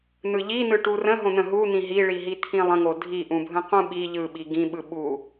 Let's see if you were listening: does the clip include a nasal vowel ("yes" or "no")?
yes